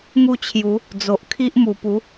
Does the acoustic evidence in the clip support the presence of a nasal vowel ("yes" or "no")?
no